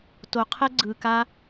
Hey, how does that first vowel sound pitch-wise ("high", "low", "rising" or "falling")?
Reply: low